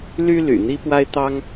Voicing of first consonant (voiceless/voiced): voiced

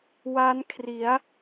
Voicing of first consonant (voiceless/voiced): voiced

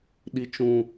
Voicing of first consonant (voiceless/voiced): voiced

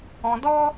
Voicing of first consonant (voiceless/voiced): voiced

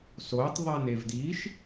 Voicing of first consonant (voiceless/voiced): voiceless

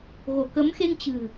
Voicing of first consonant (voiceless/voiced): voiced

